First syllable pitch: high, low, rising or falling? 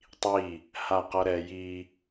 falling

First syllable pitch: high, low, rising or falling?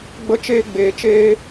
high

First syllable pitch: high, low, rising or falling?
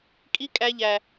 high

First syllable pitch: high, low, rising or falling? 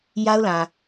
high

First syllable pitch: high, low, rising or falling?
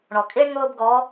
low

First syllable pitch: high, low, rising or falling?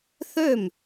falling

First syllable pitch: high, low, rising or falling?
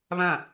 falling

